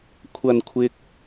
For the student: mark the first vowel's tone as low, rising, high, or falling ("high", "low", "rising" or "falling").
low